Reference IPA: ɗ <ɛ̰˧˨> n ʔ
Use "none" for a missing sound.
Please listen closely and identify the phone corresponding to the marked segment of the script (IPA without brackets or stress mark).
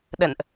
ə̰˧˨